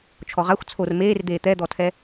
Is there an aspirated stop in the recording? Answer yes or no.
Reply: yes